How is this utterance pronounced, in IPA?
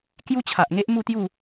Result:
kju˦t͡ɕʰa˨ʔŋe˦ʔ mu˥˧t̪ju˥˧

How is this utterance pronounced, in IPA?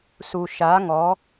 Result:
su˨ ʃa˨˦ŋɔ˨˦

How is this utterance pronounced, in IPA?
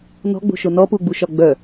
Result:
nɔ̤ɡ͡bo̤ʃo nɔpuɡ͡buʃɒ ɡ͡bœ

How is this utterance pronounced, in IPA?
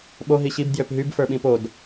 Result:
ɓo ɦiɕib djøpɦyb fə˞ɓĩpod

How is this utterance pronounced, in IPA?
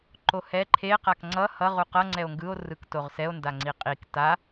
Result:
ǃohɛ ǃʰe qakŋ͡ǀʌ hʌ ʁuqʌ ŋ͡ǀɛo̯ŋɡɯo̯ rɯktoʁsɛo̯ ndaŋ͡ǀiqʼik ta

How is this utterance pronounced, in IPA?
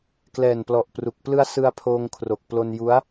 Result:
klɛː˨˩nplɔ˨˩ʔpru˨˩k̚ plɯ˦˥a̯sɯ˧a̯ pʰoː˧ŋ kʰro˨˩k̚plo˧nju˦˥a̯

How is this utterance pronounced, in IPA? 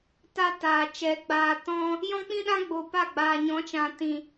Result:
ta˦taː˨t͡ʃɛ˨˦ ɡ͡baː˨tɔ̃˧ | jɔ̃˦k͡pĩ˦ɗã˦ ɡ͡bo˧pa˦˨ɡ͡baː˨ ɲɔ̃˨˦t͡ʃã˨tĩ˨

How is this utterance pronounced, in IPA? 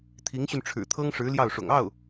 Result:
t̪ʰi˧˥ŋɕy˧n ʈ͡ʂʰɻ̩˨˩t̪ʰɤ˥ŋʂɻ̩˧˥ ljɑ˥˩ʊ̯ʂʊ̰˨˩ŋ ɑ˥˩ʊ̯

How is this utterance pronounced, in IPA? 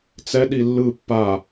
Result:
t͡sɛɗi lːɯ pːa

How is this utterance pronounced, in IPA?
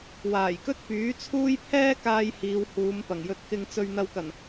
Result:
waː˨˩jkɵ˥t̚pyː˨˥t͡sʰuː˥j pʰɛː˥kaː˧j hiː˨˧whuː˨˧mpɐ˨˩ŋjɵ˧t̚ kɪ˧ŋt͡sɵ˧ɥ n̪ɐ˧wkɐ˨˩n

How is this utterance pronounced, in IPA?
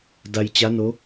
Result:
da˧j t͡ɕa˧˥no˧˥

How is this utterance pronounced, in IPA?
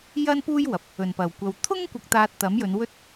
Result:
jɐ˥npuː˥jwɐ˨p̚ | ɵ˨˩npɐ˨˩wkʷɐ˨w t̪ʰʊ˥ŋ kʷɐ˧k̚t̪aː˧t̚ t̪ɐ˨˥mjɵ˨˧nwɵ˥t̚

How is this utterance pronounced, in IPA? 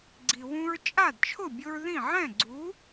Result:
ɡ͡ǀi˩wũ˧ɹ t͡ʃʼa˥˩dt͡ʃʰʊ˥˩bʲʊ˧ɹ ðĩ˥˩ ʕɛ̃˥˩ɡ͡ǀu˩˥

